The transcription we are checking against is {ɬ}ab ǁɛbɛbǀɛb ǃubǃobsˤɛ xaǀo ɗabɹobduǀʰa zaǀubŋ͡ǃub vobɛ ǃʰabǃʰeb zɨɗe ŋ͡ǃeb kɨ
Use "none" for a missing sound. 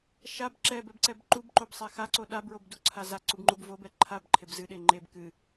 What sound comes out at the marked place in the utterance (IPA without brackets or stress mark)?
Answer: ʃ